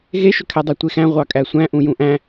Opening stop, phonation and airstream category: aspirated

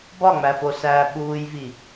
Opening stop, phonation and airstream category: plain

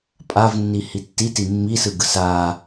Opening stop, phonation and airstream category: ejective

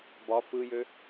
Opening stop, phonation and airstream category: plain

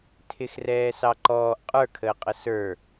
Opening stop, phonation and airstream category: aspirated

